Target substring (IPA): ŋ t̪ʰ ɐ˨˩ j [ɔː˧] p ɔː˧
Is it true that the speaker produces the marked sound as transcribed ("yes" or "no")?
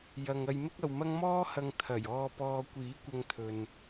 yes